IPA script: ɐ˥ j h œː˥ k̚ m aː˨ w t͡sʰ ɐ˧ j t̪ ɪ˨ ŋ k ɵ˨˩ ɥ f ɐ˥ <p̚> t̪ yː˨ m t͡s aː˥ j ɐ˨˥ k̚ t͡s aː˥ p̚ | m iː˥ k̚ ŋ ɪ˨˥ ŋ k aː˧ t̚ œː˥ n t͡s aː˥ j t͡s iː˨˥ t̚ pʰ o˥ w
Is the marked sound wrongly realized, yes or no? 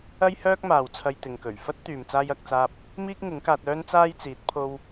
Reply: yes